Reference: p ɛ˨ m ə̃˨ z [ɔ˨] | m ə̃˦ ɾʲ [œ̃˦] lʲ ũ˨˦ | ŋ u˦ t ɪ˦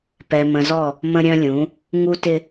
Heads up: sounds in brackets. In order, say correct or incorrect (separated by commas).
incorrect, correct